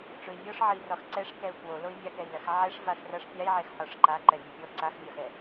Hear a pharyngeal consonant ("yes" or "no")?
yes